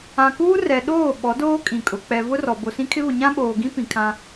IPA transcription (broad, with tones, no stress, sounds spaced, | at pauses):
ã˨ k uː˦ r ɛ˨ ɗ oː˦˨ ɓ ɔ˨˦ d oː˦ kʼ ĩ˨ kʼ ʊ˨ k͡p ɛ˨ v ʊ˦ r ɔ˨ b o˨ s ĩ˦ kʰ ɪ˦ β ʊ˨ ɲ ã˦ ɓ oː˨ ɡ ĩ˦ p ĩ˨ kʰ ã˦